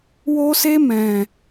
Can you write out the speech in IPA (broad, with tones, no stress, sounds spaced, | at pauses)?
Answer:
w o˦ s e˦ m ɛ̃˧